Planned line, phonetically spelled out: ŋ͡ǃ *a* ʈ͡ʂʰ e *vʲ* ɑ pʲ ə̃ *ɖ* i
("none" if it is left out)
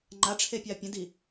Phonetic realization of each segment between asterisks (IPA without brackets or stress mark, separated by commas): a, pʲ, d